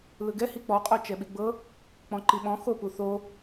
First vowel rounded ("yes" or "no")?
no